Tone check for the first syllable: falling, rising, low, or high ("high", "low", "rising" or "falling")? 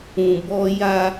low